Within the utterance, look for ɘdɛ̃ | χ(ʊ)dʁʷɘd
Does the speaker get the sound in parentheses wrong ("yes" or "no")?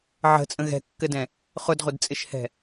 no